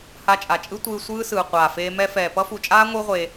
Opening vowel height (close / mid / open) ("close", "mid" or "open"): open